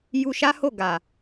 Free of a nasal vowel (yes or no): yes